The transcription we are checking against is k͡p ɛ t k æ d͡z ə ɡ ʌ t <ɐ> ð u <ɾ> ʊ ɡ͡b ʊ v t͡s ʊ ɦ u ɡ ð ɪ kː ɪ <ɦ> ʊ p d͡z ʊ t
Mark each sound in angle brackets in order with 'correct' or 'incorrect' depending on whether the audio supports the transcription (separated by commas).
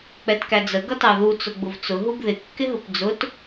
incorrect, incorrect, correct